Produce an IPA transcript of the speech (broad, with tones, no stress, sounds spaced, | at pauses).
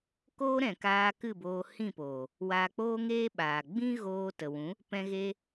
k oː˦ ɾ ɛ̃˨ k aː˧ k ɨ˦˨ b oː˧ h ĩ˦˨ p oː˨ | w aː˧ k͡p oː˦ ŋ eː˦ ɓ aː˨ ɡ͡b ĩ˦ ɣ oː˧ t ə˨ w ũ˨˦ | p ɛ̃˧ ɣ e˧